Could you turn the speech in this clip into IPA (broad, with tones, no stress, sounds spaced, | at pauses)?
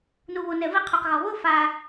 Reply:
n u˨ β o˨ n ɛ˨ v i˧ qʰ u˨ q ɣ ɔ˨ β o˦ f a˧